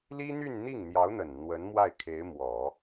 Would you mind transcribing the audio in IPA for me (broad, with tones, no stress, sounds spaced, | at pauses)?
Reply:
l i˥ n̪ y˥˧ n n̪ i˥˩ ŋ n̪ j ɑ˧˥ ʊ̯ n̪ ə˨˩ n n̪ w ə˧˥ n m w a˥˩ ɪ̯ kʰ e˧˥ ɪ̯ m w ɔ˨˩˦